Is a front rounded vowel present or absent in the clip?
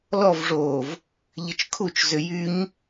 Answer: present